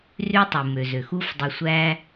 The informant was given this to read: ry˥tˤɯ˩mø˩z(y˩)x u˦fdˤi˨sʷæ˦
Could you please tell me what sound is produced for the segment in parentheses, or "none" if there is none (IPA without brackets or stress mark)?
ø˩